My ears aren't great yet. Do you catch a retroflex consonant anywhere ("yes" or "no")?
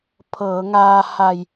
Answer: no